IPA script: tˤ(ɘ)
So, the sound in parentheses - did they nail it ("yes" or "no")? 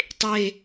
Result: no